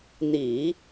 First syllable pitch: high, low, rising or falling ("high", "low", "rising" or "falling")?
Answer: low